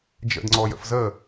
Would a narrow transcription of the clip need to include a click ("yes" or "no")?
yes